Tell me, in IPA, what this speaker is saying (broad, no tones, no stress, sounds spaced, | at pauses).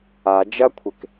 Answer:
a d͡ʒ ɐ kʷʰ e k